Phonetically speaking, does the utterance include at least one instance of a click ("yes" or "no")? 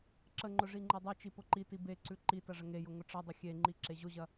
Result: yes